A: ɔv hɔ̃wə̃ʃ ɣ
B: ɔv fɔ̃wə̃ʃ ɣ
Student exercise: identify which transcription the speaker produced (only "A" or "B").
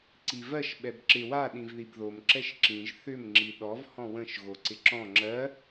A